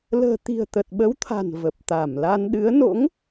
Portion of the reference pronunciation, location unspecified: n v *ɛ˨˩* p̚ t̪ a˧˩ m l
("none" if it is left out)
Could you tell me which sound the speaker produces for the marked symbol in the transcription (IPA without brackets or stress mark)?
ə˨˩